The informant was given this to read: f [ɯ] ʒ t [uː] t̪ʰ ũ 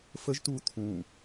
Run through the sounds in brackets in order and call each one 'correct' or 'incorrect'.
incorrect, correct

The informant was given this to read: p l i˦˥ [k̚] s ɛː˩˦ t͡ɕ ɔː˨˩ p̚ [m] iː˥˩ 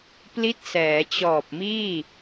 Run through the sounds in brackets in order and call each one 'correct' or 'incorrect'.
incorrect, correct

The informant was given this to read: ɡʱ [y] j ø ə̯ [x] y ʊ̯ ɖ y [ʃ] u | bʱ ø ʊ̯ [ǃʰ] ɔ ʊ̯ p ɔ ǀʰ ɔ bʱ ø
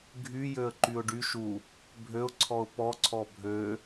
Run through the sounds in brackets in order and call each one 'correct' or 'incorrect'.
correct, incorrect, correct, incorrect

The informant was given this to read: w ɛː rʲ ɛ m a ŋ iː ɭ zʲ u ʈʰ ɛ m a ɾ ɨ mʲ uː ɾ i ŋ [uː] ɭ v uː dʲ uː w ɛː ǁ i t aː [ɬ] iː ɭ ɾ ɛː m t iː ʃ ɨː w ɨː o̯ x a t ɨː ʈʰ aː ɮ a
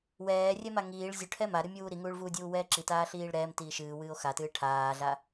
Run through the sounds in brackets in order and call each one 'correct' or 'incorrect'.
correct, correct

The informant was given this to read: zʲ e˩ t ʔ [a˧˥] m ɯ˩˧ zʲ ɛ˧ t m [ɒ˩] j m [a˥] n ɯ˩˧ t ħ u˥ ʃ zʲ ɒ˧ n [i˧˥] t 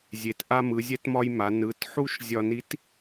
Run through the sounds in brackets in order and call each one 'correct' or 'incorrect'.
incorrect, incorrect, incorrect, correct

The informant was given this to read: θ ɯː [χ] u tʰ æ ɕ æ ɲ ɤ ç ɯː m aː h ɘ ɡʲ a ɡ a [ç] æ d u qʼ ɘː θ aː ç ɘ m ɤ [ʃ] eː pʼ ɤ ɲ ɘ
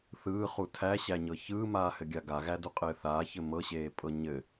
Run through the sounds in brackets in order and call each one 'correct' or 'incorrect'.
correct, incorrect, incorrect

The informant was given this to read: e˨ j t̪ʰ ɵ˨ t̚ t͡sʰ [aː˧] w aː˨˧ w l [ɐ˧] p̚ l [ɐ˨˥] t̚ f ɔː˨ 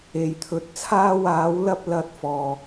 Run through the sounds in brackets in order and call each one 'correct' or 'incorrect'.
correct, correct, incorrect

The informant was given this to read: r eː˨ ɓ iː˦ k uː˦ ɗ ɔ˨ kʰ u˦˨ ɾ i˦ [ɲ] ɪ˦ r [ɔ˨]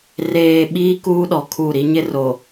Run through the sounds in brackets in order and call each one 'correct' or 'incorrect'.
correct, incorrect

